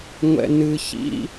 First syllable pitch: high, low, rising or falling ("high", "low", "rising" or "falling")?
low